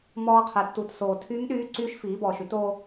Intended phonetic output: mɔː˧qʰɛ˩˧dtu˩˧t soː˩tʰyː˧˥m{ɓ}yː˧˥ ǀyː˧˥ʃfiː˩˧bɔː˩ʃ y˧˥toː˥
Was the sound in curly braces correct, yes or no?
no